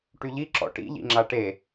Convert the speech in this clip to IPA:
ʈ y ʎ i ǁ ɔ̰ ʈ ḭ ʎ ḭ ŋ͡ǁ a ʈ e

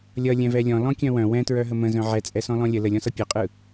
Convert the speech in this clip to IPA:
lʲ ʌ lʲ ɛ̃ v ɛ lʲ ɔ̃ l ɔ̃ kʲ œ̃ w œ̃ w ɛ̃ t ɹ œ ɦ ə m ə̃ z œ̃ ʕ ɛ t͡sʼ ɛ s ɔ̃ l ɔ̃ lʲ ə l ə lʲ ɔ̃ s ʌ pʲ ɛ qʼ ɯ

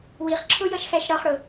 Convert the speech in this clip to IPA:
w i χ ǁʰ ʊ j ʌ ʃ x æ ʃ ɾ ɒ χ ɽ ʊ

